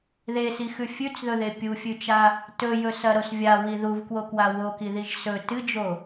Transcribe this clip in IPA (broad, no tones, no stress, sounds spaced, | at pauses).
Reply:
ð e s i x ʉ fʲ ʉ t͡s ð ɵ ð e pʲ u fʲ ʉ t͡ʃ a | t ɵ j ɵ s ɐ ɾ o s vʲ a w i ð u v k w o k w a w o k i ð i ʒ s ɵ t ɨ d͡ʒ o